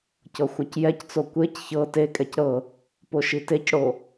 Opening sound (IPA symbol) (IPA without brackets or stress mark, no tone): c